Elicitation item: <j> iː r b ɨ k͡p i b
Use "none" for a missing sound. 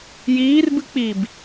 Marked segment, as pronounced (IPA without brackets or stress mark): j